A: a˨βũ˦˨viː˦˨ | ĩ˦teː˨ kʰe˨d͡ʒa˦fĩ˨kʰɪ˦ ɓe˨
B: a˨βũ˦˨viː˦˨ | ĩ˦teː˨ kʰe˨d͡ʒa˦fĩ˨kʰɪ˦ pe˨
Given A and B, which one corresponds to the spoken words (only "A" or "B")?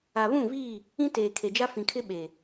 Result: A